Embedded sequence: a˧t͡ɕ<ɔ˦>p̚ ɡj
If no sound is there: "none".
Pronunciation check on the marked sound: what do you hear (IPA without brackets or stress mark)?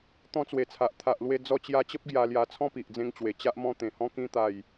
ə˦